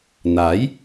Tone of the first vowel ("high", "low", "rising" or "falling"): rising